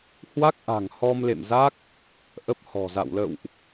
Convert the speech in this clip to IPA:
hwa˦˥k̚ʔa̤˨˩ŋ hɔ˧mlḛ˧˨m za˦˥k̚ | ʔə˦˥p̚hɔ̤˨˩za̰˧˨w lə̰˧˨wʔ

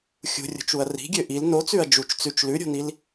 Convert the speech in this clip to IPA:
xʲṳrʲo̤t͡ʃuɐ̯ ri̤ɡʲø ʔil not͡sʉɐ̯ d͡ʒut͡ʃ t͡sʉt͡ʃ lʉɾʲo̤nil

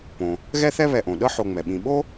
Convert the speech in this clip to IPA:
põ˩ | ɣɛ˦θɛ˦βɛ˨ʔõ˩ ɗɤ˦ħo˨ŋ͡mɛ˩ɓĩ˨ ɓo˥

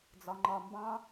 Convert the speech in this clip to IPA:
d͡zɒŋ͡ǃɒmbɑ̃

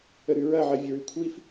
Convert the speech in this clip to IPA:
əɾʉɹɐʕɐ vʲəɹʉkʷʰif

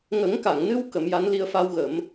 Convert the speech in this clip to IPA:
ŋə˨˩˦ŋka˨˩˨ŋnɨ˧w kə˨˩˦mja˧˥n li˧ə̯fa˧wɣə˨˩˦m

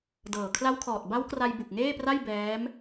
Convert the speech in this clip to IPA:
dɤː˨˩ kʰla˦˥wkʰɔː˨˩t̚ ba˦˥wkra˧j bu˨˩k̚ŋeː˥˩pra˥˩j bɛː˦˥m

